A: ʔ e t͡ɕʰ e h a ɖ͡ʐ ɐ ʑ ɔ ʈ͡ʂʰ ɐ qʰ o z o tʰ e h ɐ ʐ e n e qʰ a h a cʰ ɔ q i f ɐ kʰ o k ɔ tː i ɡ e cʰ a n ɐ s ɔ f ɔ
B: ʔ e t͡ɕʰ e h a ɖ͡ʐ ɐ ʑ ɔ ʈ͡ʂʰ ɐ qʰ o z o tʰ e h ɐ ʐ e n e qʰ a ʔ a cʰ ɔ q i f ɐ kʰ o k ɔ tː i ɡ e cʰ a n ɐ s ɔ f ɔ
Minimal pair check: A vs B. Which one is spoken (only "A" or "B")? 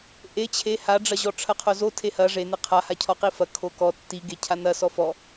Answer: A